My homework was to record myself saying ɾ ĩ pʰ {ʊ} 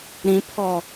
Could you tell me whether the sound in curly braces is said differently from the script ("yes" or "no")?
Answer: yes